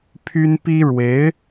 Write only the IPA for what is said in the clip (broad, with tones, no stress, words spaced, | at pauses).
pʰy˥n pi˥ɻwe˧˥ɪ̯